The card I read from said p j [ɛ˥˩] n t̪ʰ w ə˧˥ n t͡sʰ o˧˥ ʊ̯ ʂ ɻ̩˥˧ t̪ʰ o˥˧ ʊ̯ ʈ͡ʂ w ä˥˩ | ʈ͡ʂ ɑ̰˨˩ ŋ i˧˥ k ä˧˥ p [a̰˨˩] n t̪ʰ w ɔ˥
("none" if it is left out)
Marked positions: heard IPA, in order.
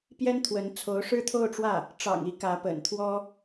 ɛ˥, ə̰˨˩

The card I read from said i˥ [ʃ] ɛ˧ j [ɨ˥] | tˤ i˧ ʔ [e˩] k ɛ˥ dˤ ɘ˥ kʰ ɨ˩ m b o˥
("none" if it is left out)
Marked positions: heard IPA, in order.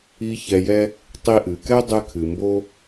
ç, ɛ˥, ɨ˩

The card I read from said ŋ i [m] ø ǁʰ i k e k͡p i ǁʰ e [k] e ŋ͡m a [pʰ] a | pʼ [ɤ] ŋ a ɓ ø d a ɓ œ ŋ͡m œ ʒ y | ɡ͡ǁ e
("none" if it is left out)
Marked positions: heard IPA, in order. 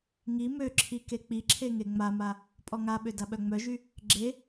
m, ŋ, m, ɔ

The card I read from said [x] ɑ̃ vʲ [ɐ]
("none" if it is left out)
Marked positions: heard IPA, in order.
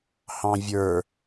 h, ə˞

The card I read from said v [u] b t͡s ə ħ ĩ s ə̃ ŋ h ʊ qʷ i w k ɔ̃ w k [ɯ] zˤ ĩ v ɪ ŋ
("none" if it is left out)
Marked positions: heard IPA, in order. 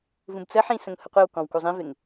ũ, u

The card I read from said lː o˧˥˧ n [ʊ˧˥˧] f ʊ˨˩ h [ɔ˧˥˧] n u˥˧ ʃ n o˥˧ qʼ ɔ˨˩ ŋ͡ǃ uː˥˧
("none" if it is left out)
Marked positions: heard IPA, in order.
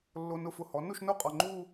ʊ˧˥˧, ɔ˩˥

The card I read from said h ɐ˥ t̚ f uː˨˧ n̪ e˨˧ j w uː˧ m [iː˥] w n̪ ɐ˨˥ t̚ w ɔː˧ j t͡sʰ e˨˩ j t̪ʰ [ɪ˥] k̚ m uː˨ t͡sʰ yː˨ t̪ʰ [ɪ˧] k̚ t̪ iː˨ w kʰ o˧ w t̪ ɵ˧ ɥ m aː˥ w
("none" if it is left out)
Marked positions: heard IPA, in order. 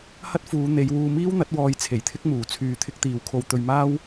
iː˥, ɪ˥, ɪ˧

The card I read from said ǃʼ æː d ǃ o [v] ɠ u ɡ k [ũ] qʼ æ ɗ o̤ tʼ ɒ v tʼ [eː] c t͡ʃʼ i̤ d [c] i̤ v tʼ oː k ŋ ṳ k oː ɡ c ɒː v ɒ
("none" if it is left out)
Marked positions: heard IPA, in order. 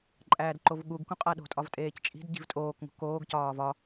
v, ũ, eː, ɟ

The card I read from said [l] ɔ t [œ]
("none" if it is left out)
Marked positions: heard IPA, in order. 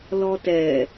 l, ɛ

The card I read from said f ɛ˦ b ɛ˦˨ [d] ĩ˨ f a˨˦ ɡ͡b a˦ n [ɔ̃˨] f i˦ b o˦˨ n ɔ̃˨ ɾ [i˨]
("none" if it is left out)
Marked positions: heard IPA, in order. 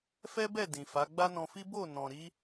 d, ɔ̃˧, i˨˦

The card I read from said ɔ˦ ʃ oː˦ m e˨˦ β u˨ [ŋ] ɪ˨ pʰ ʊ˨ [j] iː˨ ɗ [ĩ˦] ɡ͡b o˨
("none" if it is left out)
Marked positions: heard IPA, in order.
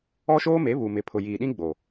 m, j, ĩ˦

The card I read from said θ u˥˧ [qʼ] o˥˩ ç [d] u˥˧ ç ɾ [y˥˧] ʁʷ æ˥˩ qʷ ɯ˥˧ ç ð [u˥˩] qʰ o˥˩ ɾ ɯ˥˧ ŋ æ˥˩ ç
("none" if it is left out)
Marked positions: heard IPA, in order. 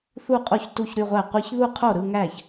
qʼ, t, y˥˧, u˥˧

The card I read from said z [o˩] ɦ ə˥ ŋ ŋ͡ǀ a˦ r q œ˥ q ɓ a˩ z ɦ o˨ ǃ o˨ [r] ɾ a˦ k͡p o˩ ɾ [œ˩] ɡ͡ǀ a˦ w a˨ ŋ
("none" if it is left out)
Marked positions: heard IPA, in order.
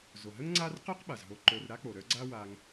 o˩, r, œ˦

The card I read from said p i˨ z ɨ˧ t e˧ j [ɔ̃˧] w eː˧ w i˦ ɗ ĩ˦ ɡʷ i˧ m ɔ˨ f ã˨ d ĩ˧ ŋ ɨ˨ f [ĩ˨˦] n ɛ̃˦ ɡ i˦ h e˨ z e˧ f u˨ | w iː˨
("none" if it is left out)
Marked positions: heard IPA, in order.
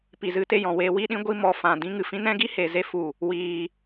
ɔ̃˨, ĩ˧

